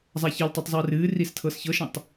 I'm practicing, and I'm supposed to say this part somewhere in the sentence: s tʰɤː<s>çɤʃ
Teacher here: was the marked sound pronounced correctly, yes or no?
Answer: yes